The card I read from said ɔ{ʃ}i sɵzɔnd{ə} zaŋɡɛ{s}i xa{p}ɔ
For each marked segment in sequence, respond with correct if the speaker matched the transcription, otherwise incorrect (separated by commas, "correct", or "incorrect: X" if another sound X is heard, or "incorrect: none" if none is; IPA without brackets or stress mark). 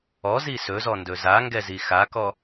incorrect: z, incorrect: ɵ, incorrect: z, incorrect: k